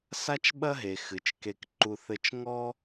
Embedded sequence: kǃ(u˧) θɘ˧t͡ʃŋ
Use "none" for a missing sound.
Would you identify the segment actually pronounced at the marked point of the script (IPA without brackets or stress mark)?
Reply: u˧